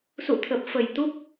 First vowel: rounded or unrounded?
rounded